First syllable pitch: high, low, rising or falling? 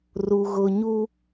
low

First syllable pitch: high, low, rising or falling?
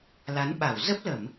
rising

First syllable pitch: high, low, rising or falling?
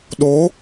rising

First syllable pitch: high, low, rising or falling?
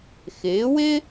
rising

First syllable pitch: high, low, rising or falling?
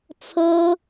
high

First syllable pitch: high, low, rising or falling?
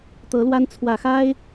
rising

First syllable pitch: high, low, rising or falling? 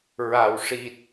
low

